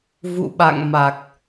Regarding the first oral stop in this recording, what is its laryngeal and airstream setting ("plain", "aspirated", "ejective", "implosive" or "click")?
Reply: implosive